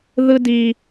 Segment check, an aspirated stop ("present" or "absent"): absent